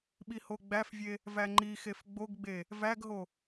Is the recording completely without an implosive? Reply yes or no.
no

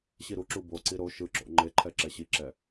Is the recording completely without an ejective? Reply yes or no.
yes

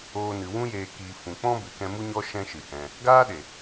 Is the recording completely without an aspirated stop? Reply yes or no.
yes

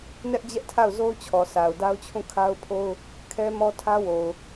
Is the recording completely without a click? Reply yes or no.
yes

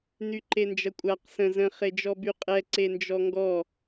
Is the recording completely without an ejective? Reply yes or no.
no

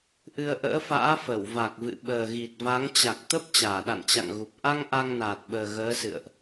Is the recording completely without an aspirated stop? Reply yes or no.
yes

